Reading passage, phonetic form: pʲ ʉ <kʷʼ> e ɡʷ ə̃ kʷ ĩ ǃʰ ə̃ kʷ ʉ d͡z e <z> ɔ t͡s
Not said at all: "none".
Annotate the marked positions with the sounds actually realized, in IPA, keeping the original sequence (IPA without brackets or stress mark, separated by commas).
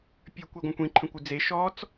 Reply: kʷ, ʃ